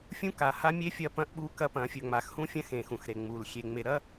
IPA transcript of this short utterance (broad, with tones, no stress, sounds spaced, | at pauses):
fʲ ũ˦ k a˨ h a˦ mʲ e˦ fʲ ɐ˦ p ɐ̃˦ ʔ ɓ u˦ k ɐ˦ p ɐ̃˨˦ fʲ ɵ˨ ŋ͡m a˨ x h ũ˦ fʲ ɐ̃˦ x ẽ˨ x ũ˨ x ɾ e˨ ŋ͡m u˨ l xʲ e˨ ŋ͡m e˨ ɾ ɐ˦